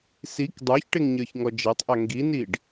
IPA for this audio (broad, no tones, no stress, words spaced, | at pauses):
sik dˤə˞çʈeŋ ɲə˞çŋɔd͡ʒatˤʔa ŋɡiniɖ